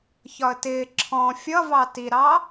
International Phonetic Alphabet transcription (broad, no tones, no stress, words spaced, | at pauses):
çɒə̯tɪː ǁʰɔ̃ fʲʌvɑ tiɾɑ